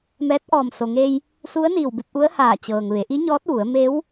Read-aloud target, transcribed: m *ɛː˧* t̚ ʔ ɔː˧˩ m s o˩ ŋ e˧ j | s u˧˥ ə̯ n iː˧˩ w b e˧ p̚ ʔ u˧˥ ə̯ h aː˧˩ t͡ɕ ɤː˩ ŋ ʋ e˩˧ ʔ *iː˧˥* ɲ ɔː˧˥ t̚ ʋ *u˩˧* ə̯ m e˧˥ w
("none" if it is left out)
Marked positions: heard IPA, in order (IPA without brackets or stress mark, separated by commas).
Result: ɛː˧˥, i˧˥, u˩˧